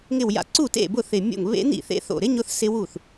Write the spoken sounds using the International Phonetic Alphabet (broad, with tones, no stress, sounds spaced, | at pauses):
ŋ ɪ˧˩ w j a̰˧˩ ǀ u˥˩ t ḛ˥˩ b ʊ˥˩ θ ɪ˧˩ mʲ o̰˥˩ ŋ β ḛ˦˥ n̪ ḭ˥˩ θ ḛ˦˥ θ o̰˧˩ ɾ ɪ˦˥ ɲ ʊ˦˥ θ s ɪ˦˥ w u˥˩ θ